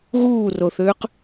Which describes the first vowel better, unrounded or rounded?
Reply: rounded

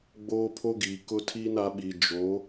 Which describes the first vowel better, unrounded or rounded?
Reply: rounded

